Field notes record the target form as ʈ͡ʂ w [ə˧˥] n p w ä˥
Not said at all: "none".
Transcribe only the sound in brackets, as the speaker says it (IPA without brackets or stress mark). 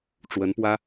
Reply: ə˧˥